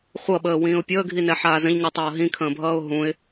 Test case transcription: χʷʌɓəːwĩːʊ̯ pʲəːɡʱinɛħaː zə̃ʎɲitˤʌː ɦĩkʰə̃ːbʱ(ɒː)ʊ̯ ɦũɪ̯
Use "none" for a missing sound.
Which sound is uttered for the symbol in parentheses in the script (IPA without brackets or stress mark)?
ʌː